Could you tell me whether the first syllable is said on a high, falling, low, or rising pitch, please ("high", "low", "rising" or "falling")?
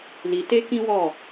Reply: low